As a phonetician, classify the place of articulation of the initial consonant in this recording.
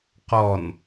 uvular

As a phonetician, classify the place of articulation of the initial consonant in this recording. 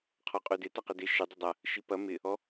uvular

